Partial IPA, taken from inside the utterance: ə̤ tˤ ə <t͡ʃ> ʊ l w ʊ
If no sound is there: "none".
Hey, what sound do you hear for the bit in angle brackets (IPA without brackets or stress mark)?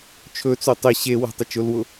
t͡ʃ